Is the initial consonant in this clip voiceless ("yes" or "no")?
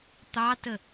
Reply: yes